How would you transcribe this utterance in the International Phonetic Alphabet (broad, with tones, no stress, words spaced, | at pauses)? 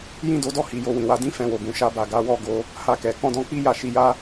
jĩ˦do˧dɔ˦ hi˧jo˧ wĩ˨wa˨˦ dĩ˦fɛ̃˧wo˨ɡũ˨ ʃa˧ba˨ɡa˨˦wɔ˦˨ ɡo˧ | ha˧kɛ˨ kɔ̃˧dɔ̃˧k͡pi˦ ja˦˨ʃi˨˦ja˦